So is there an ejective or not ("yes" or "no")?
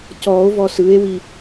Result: no